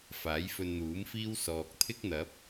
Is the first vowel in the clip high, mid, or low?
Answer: low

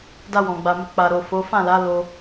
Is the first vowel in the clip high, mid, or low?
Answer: low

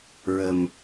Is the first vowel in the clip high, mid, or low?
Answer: mid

